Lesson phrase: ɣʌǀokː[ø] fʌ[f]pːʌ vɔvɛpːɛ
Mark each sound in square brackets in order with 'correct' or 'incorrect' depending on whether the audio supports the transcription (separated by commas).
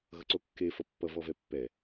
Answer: incorrect, incorrect